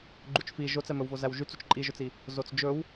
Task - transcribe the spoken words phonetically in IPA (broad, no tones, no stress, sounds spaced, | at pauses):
ɡ͡ǃ u t͡ʃ f i ʒ o t͡s ɛ m ɵ w v o z æ w ʒ y t͡s u t͡ʃ ǃʼ i ʒ ɵ t͡s i | z o t͡s d͡ʒ ɵ w